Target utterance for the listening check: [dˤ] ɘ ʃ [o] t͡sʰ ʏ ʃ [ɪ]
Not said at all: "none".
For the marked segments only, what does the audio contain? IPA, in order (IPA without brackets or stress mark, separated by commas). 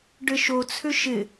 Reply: ɖ, o, ɪ